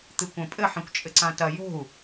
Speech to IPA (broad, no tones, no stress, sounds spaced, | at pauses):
t̪ ɨ kʷ ɐ̃ pʼ ɘ ħ ĩ kʷ t͡ʃʼ ɘ ǀ ã t ɐ j o̤ u̯